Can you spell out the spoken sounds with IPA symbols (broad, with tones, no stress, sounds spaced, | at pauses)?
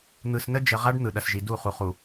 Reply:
n̪ ɯ˨ s n ə˦ d͡ʒ ə˨ ʁ a˦ ɖ n̪ ɯ˨ ɗ ɐ˨ s ʒ i˨ d u˦˨ χ u˨ χ u˨